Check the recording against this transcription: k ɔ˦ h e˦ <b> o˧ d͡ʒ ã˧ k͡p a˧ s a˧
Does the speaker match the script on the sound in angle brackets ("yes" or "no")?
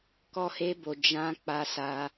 yes